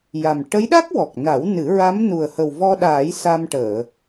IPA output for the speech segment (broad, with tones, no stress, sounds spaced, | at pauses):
j a˨˩ m ʈ ə˧˥ j ɗ a˦˥ k̚ w ɔ˨˩ k̚ n a˨˩˦ w n ɨ˨˩˦ ɹ a˧˥ m n u˨˩ ə̯ h ə˨˩ w v ɔ˧ ɗ aː˨˩˦ j s a˧ m ʈ əː˨˩˨